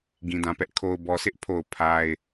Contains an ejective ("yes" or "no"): no